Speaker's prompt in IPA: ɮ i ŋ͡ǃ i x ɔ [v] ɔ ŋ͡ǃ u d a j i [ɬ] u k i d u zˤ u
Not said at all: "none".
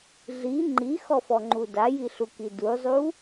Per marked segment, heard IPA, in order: f, ɬ

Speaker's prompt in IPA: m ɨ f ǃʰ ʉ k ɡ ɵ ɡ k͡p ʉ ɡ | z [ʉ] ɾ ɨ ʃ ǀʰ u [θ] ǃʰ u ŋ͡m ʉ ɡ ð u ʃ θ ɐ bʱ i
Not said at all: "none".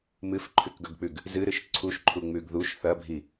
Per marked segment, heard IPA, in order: ɨ, ʃ

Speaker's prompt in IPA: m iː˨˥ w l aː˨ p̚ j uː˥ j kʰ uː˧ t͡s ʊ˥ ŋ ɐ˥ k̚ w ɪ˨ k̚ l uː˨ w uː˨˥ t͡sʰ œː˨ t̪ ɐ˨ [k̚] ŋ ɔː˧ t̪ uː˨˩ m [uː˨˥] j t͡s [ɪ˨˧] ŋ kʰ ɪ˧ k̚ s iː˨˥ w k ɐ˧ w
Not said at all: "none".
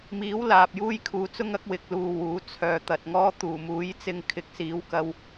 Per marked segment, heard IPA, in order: t̚, uː˨˥, ɪ˧

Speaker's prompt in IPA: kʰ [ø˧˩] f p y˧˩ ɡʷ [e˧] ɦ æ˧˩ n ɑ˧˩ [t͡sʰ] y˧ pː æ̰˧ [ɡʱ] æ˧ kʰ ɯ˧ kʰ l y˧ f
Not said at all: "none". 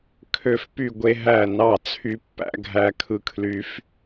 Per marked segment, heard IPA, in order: ø˧˩, e˧, t͡sʰ, ɡʱ

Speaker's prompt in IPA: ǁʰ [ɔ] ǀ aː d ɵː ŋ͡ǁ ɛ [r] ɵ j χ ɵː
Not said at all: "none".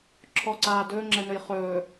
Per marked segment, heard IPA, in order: ɔ, n

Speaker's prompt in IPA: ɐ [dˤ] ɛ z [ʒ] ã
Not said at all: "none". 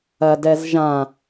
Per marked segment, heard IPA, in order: d, ʒ

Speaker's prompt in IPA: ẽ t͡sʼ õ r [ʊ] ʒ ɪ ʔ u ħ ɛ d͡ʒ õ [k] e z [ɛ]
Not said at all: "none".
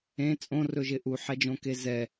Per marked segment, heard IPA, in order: ɵ, k, ɛ

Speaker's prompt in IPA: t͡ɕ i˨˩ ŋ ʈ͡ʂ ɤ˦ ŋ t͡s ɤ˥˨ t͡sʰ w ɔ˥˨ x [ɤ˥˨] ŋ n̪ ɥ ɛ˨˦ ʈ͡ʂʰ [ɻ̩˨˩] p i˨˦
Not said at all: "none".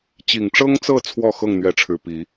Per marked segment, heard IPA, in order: ɤ˥˨, ɻ̩˨˩

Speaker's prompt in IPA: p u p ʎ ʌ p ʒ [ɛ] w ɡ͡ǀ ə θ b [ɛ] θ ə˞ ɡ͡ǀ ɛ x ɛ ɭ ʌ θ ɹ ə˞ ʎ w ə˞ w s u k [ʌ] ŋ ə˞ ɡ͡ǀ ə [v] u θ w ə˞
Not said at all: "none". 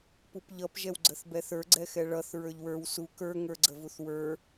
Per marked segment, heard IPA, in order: ɛ, ɛ, ə˞, v

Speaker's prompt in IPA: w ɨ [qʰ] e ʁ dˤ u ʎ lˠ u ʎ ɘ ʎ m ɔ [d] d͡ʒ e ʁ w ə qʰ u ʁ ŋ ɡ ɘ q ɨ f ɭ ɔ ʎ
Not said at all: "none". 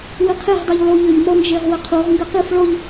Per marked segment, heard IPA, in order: qʰ, n

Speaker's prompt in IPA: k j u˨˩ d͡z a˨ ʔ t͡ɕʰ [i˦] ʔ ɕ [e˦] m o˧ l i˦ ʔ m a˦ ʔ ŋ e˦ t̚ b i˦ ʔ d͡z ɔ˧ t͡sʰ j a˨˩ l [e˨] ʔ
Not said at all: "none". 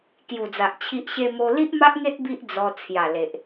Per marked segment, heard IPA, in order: i˦, e˧, e˨

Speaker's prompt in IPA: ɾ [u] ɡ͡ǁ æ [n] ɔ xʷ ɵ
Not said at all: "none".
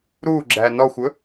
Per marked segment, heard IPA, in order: u, n

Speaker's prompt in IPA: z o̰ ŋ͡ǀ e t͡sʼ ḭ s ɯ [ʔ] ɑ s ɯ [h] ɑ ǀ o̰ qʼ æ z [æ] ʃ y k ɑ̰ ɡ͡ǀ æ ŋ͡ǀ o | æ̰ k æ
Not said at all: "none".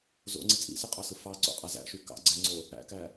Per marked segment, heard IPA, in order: qʼ, f, æ̰

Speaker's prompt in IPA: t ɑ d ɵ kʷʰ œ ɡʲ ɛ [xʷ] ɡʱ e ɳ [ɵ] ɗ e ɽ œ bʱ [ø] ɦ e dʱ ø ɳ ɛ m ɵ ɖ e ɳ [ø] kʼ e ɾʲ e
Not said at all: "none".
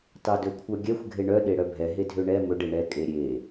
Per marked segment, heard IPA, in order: xʷ, œ, ɛ, ɛ

